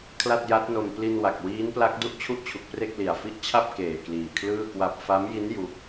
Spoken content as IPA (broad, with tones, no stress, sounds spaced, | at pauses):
kʰ l a˥˩ t̚ j a˦˥ t̚ n o˧ m p l i˧ n w a˨˩ k̚ w iː˦˥ n p l a˦˥ k̚ d u˥˩ ʔ t͡ɕʰ u˥˩ ʔ t͡ɕʰ u˨˩ k̚ p r e˥˩ k̚ l i˨˩ a̯ f i˦˥ ʔ t͡ɕʰ a˥˩ p̚ k eː˨˩ k l iː˨˩ kʰ l ɯː˥˩ k w a˥˩ p̚ f a˦˥ m j i˦˥ n j u˦˥ k̚